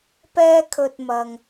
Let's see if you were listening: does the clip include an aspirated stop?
yes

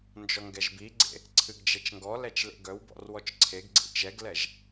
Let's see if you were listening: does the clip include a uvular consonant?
no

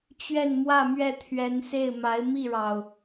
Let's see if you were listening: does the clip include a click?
no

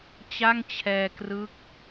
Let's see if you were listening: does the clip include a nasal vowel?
no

